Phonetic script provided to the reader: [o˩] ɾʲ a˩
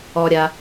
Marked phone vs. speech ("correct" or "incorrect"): incorrect